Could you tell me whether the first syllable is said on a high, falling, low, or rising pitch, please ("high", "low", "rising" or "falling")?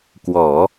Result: low